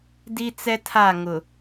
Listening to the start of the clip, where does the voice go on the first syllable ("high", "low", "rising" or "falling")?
high